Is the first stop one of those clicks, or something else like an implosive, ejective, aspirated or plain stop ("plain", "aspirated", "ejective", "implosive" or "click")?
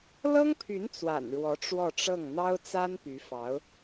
aspirated